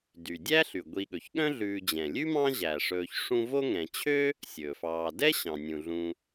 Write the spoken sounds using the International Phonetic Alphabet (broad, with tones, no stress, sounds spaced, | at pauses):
d y˩ dʲ æ˥ ɬ y˩ ɡʷ i˨ ɠ ɵ˩ ç ɠ œ̃˥ ɮ ʉː˨ d͡ʑ ɛ̃˩ lʲ ʉ˥ m ɑ̃˥ ʑ æ˩ ʂ ɵː˨ ç ʂ ũ˦ v o˥ ŋ ɛ̃˨ t͡ɕʰ ø˥ | sʲ ɵː˩ f ɑː˨ d ɛ˥ ɕ ɑ̃˩ nʲ ũ˩ ɮ ũ˨